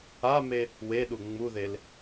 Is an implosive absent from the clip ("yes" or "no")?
no